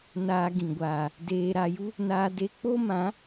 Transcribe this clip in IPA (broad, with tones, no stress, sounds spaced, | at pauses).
n aː˧ ɡ ĩ˨ ɡʷ aː˨ | d eː˧ ɾ a˧ j u˦ | n aː˧ d e˧ k͡p o˦ m ã˨˦